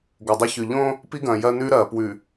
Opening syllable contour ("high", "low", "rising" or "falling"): low